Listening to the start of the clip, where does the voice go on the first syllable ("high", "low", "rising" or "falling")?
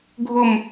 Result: falling